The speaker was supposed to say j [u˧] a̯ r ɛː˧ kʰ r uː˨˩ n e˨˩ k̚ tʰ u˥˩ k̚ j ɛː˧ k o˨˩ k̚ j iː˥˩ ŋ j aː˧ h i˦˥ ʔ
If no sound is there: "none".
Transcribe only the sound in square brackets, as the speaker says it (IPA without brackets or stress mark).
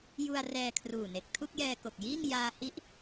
u˧